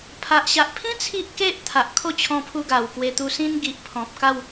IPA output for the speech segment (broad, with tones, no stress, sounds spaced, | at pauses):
pʰ a˨ ʔ ɕ a˨ ʔ pʰ ĩ˦ t͡sʰ i˦ ʔ k e˦ ʔ t̪ʰ a˨ ʔ kʰ o˥˧ t͡ɕʰ ɔ̃˧ pʰ u˧ ɡ a˨˩ w k w e˧ t̪ u˧ s ĩ˧ n ɡ i˨ ʔ pʰ ɔ̃˨ p̚ k a˥˧ w